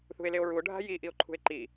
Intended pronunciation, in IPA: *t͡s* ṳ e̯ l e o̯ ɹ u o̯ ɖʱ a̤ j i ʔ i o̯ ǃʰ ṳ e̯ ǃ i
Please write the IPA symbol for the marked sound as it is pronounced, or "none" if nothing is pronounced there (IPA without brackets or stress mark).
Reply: θ